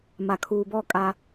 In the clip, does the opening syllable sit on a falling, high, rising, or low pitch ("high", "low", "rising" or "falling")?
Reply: low